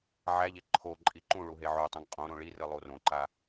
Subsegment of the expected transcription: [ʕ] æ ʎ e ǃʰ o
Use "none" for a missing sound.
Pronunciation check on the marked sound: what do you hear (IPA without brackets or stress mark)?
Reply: ʕ